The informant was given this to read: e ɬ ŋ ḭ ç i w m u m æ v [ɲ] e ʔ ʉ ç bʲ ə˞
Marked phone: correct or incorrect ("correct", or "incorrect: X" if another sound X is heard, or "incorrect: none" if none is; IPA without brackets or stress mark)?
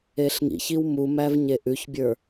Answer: correct